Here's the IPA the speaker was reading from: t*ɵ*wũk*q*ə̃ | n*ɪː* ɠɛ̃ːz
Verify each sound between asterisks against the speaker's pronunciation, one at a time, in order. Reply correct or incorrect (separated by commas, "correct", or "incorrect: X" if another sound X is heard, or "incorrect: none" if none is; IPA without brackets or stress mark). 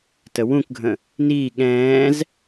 incorrect: ə, incorrect: ɡʱ, incorrect: iː